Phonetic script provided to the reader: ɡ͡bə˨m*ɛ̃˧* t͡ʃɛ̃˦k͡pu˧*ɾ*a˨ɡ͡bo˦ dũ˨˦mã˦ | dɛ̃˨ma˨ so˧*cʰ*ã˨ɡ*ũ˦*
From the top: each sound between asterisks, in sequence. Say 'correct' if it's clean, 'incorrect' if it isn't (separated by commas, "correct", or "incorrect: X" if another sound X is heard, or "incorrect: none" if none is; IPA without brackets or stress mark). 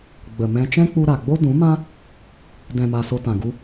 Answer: correct, correct, incorrect: t, incorrect: u˦